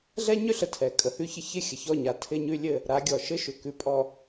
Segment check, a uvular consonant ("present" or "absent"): absent